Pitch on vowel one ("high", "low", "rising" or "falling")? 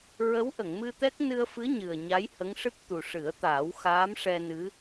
rising